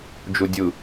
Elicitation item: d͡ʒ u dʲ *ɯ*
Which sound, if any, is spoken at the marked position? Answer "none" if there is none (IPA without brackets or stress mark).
ɯ